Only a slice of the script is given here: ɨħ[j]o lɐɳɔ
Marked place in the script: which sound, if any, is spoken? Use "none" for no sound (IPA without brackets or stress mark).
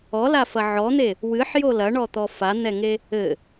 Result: j